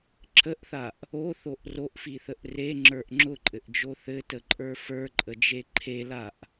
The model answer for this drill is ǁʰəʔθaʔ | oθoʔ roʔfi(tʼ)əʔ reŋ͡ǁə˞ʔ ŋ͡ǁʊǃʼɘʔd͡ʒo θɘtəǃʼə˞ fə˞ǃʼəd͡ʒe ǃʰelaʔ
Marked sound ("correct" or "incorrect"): incorrect